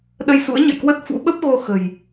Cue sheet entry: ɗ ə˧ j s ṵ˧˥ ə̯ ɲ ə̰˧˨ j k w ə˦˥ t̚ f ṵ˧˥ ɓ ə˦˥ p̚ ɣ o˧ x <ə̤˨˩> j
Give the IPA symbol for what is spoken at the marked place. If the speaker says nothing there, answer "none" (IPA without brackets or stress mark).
ə̤˨˩